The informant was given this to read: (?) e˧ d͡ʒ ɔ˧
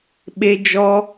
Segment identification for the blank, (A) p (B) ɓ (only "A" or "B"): B